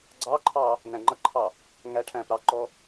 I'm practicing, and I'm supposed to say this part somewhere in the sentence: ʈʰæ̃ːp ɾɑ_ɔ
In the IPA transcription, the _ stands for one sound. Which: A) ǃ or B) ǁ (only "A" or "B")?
A